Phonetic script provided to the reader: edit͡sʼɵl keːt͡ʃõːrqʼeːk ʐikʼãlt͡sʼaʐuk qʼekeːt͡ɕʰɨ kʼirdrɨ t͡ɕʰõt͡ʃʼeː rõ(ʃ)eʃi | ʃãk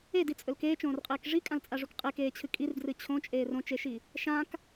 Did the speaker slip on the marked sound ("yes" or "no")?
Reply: yes